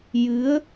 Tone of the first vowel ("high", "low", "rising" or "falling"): rising